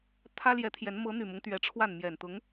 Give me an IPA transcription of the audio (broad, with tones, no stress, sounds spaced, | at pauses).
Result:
t̪ʰ ä˥ l j ɛ˧˥ t̪ʰ j ɛ˧˥ n m ɤ˧˥ n̪ y˨˩ m ʊ˦ ŋ t̪ ɥ ɛ˧˥ ʈ͡ʂʰ w a˥˩ n m j ɛ˨˩ n t̪ ʊ˧˥ ŋ